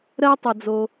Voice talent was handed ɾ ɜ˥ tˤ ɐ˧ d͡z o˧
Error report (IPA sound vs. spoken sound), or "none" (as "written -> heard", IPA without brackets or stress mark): none